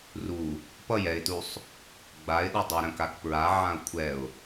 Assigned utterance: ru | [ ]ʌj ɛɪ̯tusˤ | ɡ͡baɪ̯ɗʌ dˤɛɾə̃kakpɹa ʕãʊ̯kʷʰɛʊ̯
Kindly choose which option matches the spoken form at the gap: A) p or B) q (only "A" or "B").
A